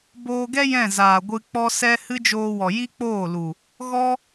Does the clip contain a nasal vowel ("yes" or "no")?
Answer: yes